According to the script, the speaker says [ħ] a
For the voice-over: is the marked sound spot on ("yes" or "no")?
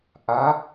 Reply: no